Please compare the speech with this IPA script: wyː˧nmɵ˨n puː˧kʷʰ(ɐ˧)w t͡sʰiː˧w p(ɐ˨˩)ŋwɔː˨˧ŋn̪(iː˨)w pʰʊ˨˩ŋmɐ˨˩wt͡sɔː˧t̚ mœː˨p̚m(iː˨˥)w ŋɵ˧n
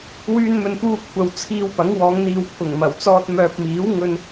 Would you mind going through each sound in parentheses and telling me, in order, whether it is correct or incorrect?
incorrect, incorrect, correct, correct

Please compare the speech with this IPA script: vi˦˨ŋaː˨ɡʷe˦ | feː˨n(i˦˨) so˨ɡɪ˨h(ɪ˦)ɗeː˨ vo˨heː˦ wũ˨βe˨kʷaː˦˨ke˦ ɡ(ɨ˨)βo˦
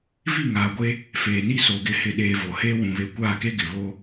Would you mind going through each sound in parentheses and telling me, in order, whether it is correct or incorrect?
incorrect, incorrect, incorrect

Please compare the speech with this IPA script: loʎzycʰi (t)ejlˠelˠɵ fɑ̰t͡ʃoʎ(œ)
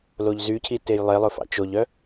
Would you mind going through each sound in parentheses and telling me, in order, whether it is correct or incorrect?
correct, correct

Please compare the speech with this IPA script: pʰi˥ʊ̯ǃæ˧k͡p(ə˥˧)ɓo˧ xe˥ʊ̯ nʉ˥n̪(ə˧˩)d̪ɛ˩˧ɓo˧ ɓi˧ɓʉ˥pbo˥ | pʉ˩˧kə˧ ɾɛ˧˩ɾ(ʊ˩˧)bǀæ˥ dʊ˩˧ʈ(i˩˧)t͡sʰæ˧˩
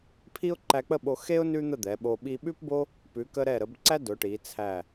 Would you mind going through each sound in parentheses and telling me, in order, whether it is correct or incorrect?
correct, incorrect, incorrect, correct

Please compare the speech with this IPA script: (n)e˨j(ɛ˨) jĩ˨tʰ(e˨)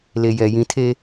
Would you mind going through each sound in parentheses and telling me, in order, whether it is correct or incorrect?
incorrect, correct, incorrect

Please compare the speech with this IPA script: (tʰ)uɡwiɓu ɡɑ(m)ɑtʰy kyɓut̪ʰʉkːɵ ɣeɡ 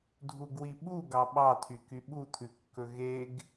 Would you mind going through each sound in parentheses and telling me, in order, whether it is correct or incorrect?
incorrect, incorrect

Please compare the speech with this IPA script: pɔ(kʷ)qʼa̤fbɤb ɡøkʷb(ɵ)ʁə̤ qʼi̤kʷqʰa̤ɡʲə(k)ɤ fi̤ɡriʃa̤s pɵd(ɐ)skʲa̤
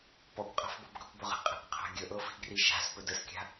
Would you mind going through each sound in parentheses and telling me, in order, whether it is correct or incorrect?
correct, correct, incorrect, incorrect

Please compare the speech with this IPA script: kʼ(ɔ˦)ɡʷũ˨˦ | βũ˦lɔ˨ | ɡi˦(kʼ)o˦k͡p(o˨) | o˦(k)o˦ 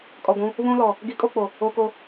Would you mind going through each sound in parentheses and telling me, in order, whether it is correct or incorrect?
incorrect, correct, correct, correct

